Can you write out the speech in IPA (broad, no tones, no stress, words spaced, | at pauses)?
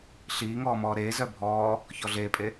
ɬiːŋɔːmɔː ɾeː zœbʱɔː | çɔɮeːpʼe